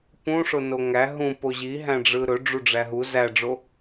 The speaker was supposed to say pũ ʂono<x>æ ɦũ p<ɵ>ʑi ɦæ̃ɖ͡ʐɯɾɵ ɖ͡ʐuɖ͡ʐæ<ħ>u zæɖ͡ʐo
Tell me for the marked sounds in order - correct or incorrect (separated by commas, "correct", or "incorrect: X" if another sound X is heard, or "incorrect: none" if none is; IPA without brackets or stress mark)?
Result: incorrect: ŋ, incorrect: o, incorrect: ɦ